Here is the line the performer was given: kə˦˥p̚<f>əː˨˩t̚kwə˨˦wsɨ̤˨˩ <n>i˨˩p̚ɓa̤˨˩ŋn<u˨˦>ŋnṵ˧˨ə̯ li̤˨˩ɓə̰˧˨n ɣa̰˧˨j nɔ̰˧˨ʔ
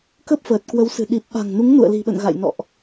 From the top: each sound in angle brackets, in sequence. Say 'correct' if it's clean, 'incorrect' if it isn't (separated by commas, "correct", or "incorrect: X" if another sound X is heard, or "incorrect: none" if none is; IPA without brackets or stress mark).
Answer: correct, incorrect: ɗ, correct